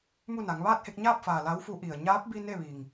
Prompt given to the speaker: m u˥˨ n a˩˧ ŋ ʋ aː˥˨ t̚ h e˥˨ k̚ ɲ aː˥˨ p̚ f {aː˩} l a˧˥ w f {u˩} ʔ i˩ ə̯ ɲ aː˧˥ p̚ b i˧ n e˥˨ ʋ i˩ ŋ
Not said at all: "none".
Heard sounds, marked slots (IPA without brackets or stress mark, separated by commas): aː˩, u˧˥